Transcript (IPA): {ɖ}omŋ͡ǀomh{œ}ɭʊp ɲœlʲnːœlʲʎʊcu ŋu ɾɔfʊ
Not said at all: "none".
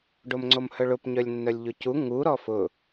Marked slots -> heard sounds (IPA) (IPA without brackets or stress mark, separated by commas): ɖ, œ